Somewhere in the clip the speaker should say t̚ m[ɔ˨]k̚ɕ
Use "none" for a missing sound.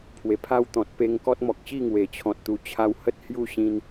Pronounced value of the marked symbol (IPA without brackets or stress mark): ɔ˨